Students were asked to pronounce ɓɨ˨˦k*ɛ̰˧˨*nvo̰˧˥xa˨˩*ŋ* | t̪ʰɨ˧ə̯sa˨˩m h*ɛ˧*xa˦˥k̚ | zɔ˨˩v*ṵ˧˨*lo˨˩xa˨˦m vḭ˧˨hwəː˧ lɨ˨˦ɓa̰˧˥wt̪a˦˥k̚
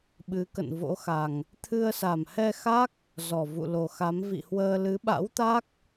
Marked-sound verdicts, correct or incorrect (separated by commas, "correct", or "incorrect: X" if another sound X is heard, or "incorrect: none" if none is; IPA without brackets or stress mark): incorrect: ə̰˧˨, correct, correct, correct